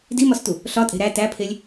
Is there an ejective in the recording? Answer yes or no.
yes